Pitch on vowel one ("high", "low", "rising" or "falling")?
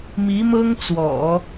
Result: rising